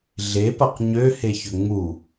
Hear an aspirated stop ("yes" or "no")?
no